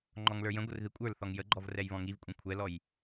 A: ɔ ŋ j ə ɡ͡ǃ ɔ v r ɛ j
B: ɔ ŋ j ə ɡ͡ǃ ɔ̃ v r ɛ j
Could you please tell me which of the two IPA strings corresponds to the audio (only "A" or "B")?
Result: A